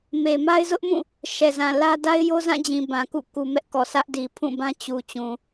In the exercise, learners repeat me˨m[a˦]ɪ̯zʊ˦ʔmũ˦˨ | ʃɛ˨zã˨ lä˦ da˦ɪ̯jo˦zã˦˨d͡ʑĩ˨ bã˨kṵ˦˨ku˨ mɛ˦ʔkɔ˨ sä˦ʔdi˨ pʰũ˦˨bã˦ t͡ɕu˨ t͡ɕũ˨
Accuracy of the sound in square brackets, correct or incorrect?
correct